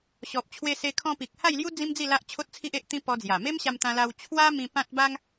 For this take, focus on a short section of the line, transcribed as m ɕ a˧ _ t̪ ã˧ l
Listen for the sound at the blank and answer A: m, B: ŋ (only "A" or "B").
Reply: A